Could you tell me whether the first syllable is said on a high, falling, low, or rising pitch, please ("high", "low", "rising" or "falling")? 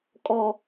high